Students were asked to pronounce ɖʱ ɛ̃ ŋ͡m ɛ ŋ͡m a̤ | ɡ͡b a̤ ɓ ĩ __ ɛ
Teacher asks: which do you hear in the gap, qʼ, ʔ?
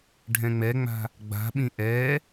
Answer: ʔ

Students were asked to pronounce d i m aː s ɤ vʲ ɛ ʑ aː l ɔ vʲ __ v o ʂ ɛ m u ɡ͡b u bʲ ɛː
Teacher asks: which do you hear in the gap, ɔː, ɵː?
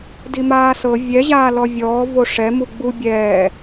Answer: ɔː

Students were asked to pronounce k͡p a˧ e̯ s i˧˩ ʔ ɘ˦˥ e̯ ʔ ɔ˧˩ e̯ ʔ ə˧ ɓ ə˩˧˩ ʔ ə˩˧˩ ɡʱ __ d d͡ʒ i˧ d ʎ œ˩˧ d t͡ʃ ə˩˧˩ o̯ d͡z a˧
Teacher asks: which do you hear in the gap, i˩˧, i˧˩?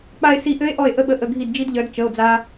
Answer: i˧˩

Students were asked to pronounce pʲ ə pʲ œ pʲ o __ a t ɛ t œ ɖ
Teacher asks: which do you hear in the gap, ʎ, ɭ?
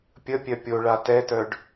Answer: ɭ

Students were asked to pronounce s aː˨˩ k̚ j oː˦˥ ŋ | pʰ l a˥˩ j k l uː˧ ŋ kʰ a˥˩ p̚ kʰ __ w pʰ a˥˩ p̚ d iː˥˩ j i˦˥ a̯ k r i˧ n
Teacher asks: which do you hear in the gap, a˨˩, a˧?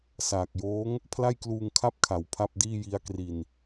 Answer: a˨˩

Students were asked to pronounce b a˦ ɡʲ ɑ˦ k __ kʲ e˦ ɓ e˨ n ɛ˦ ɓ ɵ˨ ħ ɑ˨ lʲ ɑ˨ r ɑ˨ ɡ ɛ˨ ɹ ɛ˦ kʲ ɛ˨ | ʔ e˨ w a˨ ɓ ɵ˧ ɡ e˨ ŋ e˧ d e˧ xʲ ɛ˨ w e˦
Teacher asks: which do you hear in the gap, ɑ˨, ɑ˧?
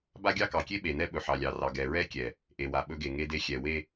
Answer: ɑ˨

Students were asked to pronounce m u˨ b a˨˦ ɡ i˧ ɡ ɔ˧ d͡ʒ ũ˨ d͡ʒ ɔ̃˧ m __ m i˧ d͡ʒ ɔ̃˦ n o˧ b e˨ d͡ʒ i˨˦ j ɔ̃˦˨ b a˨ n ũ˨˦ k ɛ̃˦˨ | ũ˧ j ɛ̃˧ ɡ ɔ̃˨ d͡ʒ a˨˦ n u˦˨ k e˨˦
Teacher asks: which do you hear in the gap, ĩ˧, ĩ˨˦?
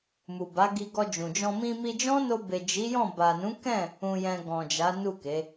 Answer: ĩ˧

